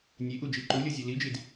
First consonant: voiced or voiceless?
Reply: voiced